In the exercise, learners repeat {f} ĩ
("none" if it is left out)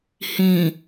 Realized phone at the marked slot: h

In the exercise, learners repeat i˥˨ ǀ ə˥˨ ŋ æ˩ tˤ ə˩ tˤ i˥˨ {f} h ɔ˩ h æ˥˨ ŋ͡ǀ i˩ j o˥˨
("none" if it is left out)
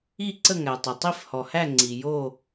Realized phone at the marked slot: f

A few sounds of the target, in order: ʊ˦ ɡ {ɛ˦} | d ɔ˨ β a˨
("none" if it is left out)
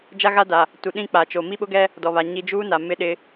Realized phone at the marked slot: ɛ˦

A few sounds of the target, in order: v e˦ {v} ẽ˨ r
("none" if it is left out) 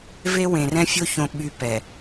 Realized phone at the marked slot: w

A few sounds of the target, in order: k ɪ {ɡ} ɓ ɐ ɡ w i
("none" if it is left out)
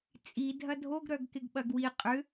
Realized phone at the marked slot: ɡ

